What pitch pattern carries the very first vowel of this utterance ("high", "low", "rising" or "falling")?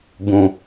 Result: low